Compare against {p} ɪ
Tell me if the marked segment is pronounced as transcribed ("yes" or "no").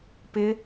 yes